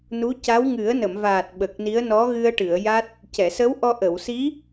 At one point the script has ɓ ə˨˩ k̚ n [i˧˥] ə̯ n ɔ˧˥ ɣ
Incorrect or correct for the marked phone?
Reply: correct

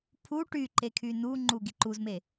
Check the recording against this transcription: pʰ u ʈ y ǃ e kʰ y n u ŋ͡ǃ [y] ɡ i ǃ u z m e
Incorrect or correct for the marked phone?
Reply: incorrect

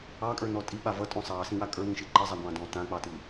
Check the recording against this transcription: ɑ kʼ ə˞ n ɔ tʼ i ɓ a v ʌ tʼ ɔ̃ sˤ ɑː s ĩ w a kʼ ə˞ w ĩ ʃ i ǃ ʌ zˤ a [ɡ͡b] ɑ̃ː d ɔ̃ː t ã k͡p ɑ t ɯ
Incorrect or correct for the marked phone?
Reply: incorrect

